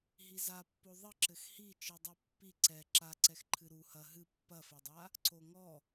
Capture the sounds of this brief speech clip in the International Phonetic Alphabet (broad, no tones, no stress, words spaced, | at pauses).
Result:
ɦizapːo ðˤɨ ǁɘxhi t͡ʃɨdˤipːi ǀɛ ǁaǀɛxǃʰɨ ɾu hɐ ɦɨ pːɐfɘdˤa | ǀoŋɔ